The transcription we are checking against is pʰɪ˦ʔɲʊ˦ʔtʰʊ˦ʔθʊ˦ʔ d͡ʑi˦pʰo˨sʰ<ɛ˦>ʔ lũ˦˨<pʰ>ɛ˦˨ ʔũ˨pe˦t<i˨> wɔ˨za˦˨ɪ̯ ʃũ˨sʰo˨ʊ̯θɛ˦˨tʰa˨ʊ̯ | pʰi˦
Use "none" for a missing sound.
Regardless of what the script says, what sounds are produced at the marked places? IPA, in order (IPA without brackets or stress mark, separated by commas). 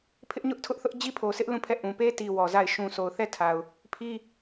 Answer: ɪ˦, pʰ, i˨